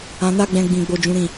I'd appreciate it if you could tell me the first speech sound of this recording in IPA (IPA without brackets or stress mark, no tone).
ã